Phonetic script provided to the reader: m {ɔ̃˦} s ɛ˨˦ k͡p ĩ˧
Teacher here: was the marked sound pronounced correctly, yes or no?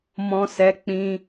no